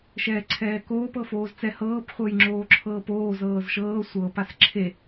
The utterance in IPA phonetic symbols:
ʃ ɛː ǀʰ ɛː k oː p ɤ f oː z t͡s ɛ h ɤː p χʷ ɤ j ŋ͡ǁ oː ǁʰ ɤː p oː z ɤː z ʃ ɤː sʷ ɤ p a s ǁʰ e

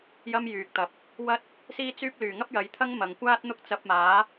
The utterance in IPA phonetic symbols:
j ɐ˧ m j yː˨ k̚ t̪ ɐ˨ p̚ | w ɐ˥ t̚ | s iː˥ t͡s yː˥ p̚ l yː˨˩ ŋ ɐ˥ p̚ j ɐ˨˥ j t̪ʰ ɐ˥ ŋ m ɐ˨ ŋ kʷ aː˥ t̚ n̪ ʊ˥ k̚ t͡s ɐ˧ p̚ m aː˨˥

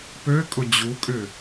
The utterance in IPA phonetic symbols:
p ø kʼ ʊ d͡ʑ u kʼ ʏ

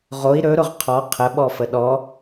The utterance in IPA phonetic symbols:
ʁ o i̯ ɾ ɵ ɾ ʊ ʁ qʰ ɔ qʰ ə ɓ ɔ f ə ɗ ɔ

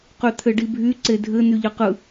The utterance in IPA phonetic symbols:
q y t̪ʰ ɘ ɖ i bʱ y ǀ e dʱ ɘ n̪ y ʎ ɘ q ɯ

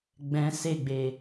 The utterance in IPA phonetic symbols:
ɡ͡b ɛ̃ s e ɡ͡b e

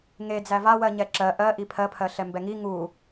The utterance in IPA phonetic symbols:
ŋ e d͡z æ v a w ɜ ɲ ɛ ǁ ɜ ʔ ɜ ʔ i pʰ ɜ pʰ ɜ ɬ ɛ m b ɛ ŋ i ŋ u

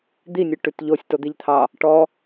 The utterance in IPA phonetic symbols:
d̪ i nʲ ʉ ʈ ʉ t ʎ o sʲ t o d̪ i ʎ t̪ʰ ɑ | ʈ ɔ

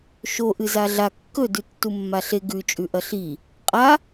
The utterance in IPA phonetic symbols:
ʃ o ʔ ɨ z a ɮ a kː ɵ d ʉ tː u mː a ɬ e ɡ ʉ t͡ʃʼ ʉ ʔ ɐ ɬ i | qʼ a

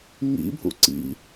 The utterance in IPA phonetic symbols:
ŋ ḭ bʱ ṵ ǀ ḭ

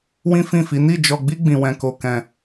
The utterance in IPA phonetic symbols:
w ĩ˦ f ĩ˦˨ f i˨˦ n i˦˨ d͡ʒ ɔ˧ ɡ͡b i˦ ɡ͡b ĩ˧ w ɛ̃˧ k o˧ k ɛ̃˧

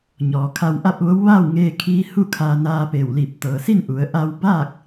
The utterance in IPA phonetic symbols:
ɲ ɔː˩ kʰ a˧ w ʔ a˥˨ p̚ ʋ o˧˥ w ʋ aː˥˨ w ŋ eː˧ kʰ iː˧˥ h u˥˨ kʰ aː˧ n aː˧ p eː˧˩ w l i˧˩ p̚ t̪ ɤː˩ s i˥˨ n ʔ u˩˧ ə̯ ʔ a˧ w b aː˥˨ k̚

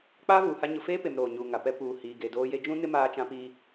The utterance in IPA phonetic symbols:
k͡p aː˦ v uː˨ h a˦ ɲ ʊ˨ f eː˦ p e˨ m ɾ oː˨ ɲ uː˨ ŋ a˨ p ɛ˦ p uː˨ h iː˨ ɡ e˨ d oː˦ j e˦ d͡ʒ ũ˦ n ɪ˦ m aː˦ t͡ʃ ã˦ p iː˦

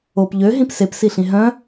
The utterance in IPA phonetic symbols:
o p ʎ ø ɦ ĩ p s e p s i ɬ ĩ ɦ œ̃

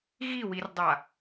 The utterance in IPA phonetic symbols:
ɣ i w i r dˤ a

